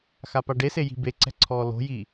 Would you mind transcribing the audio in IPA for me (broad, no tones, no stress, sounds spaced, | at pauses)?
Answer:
x a p a ɖ e s e j i̤ b e ǀ ɛ̤ ǀʰ ɔː l o̤ j iː